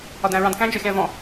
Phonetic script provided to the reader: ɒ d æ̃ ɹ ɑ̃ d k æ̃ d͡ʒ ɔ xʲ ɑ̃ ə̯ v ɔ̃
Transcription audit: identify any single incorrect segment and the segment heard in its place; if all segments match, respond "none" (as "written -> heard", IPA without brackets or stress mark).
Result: none